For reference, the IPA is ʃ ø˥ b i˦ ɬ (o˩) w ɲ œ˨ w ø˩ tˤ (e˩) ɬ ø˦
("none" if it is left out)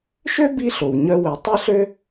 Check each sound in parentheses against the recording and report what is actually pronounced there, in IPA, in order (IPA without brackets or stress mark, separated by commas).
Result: o˩, e˦